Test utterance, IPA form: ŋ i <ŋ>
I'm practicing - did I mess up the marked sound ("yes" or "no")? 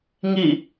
yes